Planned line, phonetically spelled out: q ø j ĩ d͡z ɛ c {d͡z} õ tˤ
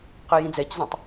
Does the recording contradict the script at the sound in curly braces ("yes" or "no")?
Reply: yes